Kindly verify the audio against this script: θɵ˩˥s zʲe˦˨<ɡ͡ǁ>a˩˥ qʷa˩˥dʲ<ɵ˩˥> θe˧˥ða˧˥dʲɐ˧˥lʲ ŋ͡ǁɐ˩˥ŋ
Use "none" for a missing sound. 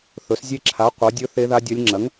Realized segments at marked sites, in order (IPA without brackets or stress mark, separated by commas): ǁʰ, ɵ˧˥